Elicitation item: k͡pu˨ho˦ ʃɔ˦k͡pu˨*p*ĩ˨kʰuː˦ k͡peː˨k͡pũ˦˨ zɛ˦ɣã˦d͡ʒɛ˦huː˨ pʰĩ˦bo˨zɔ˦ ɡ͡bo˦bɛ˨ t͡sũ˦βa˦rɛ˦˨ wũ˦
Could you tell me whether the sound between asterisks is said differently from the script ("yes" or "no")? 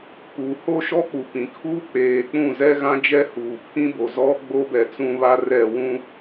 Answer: no